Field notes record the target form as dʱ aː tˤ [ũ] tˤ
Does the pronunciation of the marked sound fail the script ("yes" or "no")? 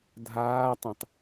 no